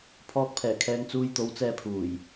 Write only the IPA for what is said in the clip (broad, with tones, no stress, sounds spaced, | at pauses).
pʰ ɔː˧ k̚ pʰ ɛː˨˩ kʰ ɛː˧ ŋ t͡s uː˧ j t̪ o˨˥ w t͡s ɛː˧ pʰ uː˨˩ j